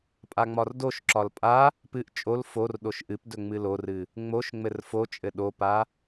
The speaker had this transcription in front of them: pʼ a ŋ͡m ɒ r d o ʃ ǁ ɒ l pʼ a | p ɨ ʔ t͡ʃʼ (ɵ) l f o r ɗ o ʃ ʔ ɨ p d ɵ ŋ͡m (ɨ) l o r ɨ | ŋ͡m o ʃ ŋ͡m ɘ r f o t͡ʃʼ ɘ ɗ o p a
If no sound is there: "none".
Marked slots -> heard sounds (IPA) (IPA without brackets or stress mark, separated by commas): o, ɨ